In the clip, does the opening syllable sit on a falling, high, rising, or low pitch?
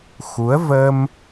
rising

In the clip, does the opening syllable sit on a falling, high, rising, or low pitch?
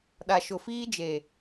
low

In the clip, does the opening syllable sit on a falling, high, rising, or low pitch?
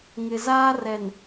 low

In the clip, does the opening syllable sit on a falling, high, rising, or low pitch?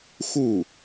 falling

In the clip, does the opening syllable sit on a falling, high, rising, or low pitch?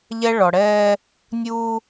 high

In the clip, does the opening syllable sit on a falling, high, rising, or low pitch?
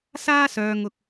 high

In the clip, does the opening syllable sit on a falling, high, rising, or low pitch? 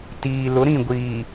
low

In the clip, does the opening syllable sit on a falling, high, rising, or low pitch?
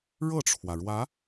falling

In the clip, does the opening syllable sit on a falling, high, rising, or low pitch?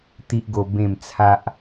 high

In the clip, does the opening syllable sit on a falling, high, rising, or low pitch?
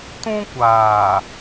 high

